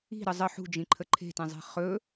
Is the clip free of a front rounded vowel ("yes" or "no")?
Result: yes